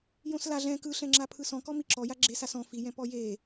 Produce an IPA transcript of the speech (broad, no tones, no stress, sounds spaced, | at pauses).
j õ s l a ɮ ɛ̃ k ɯ ɬ ɛ̃ ŋ͡ǁ a pʰ ɯ s ɔ̃ k ɔ m i ǁ ɔ j a ɡ͡ǁ e s a s ɔ̃ f i j ɛ̃ p ɔ j e